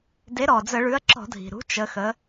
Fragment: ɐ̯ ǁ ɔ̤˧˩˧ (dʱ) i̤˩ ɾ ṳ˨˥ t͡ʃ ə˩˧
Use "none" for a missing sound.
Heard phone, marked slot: dʱ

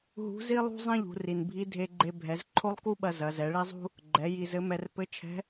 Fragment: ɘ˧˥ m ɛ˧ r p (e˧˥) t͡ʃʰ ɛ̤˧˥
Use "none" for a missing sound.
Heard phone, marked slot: ɘ˧˥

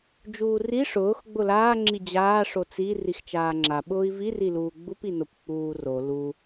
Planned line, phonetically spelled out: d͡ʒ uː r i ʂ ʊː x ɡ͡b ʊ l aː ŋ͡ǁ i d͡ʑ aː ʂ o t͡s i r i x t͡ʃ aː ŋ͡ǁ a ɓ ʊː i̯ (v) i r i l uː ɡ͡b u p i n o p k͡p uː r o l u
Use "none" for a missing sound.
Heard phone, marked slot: v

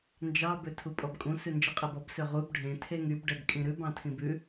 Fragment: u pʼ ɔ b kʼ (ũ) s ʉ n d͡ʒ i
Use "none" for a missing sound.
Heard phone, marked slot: ũ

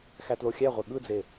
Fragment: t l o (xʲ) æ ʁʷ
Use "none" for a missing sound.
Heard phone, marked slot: xʲ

